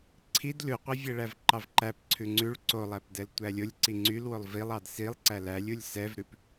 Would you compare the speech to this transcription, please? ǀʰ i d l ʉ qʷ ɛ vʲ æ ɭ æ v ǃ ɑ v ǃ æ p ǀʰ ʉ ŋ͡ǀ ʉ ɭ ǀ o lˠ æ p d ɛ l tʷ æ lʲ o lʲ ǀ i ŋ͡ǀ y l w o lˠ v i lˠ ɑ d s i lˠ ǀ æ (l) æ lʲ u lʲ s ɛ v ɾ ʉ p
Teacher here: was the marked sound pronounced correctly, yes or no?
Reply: yes